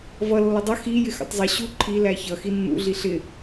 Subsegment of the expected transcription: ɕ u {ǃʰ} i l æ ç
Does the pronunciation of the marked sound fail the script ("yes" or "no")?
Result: no